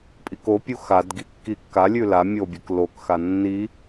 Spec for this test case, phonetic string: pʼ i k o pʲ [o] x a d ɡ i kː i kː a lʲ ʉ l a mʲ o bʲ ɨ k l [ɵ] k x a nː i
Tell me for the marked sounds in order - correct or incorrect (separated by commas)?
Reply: incorrect, incorrect